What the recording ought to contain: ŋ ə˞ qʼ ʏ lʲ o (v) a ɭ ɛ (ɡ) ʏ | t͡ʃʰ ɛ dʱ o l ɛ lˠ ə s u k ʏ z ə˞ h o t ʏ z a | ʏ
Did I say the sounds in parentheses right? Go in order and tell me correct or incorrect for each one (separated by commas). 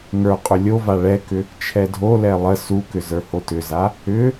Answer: correct, incorrect